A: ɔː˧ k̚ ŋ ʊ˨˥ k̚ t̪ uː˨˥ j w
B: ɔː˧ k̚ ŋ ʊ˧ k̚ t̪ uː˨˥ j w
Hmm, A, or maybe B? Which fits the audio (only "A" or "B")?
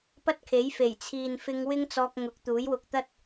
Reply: A